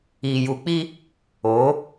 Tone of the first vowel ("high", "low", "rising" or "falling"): low